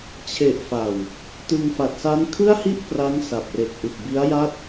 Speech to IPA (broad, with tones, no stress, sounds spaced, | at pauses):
t͡ɕʰ e˨˩ ʔ f a˨˩ w | t ɯ˧ ŋ f a˨˩ t̚ s a˦˥ n kʰ ɯ˥˩ a̯ h i˥˩ ʔ p r a˦˥ ŋ s a˨˩ p̚ r e˨˩ k̚ ʔ ɯ˨˩ k̚ b i˦˥ a̯ j a˥˩ t̚